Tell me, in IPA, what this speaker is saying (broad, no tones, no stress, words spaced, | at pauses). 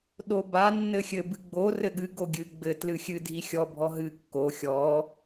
ɗoba nːɘxʲɘ bɨɡ͡bo rɘɠɨ ɡoɡʲɨ ɡ͡bɘ tlɨxʲɨ dʱixʲɔ bʱɔɦɨ kːo xʲɔ